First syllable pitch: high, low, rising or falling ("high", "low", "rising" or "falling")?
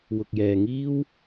low